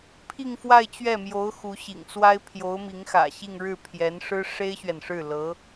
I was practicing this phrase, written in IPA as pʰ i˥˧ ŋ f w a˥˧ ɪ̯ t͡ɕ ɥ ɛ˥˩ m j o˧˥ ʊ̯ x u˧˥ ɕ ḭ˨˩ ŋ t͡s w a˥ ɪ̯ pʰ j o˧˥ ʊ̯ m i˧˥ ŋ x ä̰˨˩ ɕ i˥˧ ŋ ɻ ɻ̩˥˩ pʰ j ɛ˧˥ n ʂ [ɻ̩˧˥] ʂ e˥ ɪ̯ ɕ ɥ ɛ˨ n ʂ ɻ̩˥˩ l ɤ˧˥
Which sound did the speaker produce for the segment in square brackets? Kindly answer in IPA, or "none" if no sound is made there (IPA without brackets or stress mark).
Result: ɻ̩˥